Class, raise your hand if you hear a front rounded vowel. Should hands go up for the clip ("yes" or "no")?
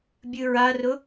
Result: no